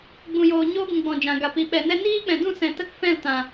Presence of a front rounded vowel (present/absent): absent